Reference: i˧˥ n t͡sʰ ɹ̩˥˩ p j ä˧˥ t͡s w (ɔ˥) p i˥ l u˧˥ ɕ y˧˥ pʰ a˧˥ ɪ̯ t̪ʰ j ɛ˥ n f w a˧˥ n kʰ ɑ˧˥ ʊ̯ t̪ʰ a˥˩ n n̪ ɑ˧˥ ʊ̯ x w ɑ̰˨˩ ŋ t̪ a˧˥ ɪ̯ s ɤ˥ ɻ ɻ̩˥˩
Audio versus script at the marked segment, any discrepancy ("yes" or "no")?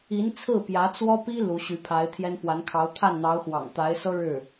no